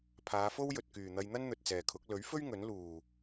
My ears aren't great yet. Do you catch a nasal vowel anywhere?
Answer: no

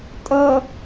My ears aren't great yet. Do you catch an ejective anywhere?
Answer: yes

